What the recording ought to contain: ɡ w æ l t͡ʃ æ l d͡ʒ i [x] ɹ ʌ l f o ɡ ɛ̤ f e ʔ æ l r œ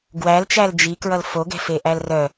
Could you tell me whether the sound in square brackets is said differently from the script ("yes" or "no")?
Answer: yes